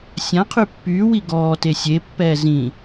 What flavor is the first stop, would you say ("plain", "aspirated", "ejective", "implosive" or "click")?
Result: aspirated